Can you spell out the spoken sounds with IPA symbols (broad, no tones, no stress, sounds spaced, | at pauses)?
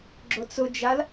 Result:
ɡ͡ǁ ʊ t͡s ʊ d͡ʒ a l